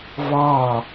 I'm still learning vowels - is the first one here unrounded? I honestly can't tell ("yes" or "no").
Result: yes